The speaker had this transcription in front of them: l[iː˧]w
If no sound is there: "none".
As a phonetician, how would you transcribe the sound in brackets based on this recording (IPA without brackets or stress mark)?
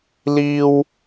iː˧